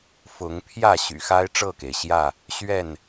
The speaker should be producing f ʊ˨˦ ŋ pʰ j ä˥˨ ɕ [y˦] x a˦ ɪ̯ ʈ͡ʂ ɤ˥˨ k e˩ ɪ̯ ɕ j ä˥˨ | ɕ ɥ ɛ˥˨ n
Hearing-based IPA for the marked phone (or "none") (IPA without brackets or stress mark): y̰˨˩